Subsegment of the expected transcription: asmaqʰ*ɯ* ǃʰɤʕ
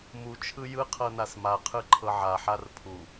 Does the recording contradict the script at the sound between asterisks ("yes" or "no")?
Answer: no